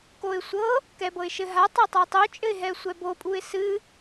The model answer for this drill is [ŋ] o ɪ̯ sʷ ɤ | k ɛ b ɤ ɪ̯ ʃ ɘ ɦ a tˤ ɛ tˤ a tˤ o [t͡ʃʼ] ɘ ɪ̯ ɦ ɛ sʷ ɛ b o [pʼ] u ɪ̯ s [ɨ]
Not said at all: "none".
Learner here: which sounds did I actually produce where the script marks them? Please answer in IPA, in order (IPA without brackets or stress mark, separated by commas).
k, t͡ʃʼ, pʼ, ɨ